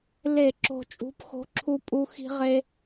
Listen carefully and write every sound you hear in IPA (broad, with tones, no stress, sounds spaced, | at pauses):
l e˧˩˧ ǁ o̤˨˩ t͡ʃʼ ṳ˩˥ p x o̤˩˥ ǁʰ u˧ pʼ u˧ x i̤˧ ʁ e˧